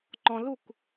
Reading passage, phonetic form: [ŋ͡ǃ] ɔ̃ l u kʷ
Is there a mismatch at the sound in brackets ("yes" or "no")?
no